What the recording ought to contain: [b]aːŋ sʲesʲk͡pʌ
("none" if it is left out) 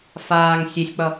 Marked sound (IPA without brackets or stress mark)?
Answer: f